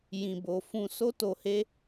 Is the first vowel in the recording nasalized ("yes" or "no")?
yes